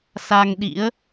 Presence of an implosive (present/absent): present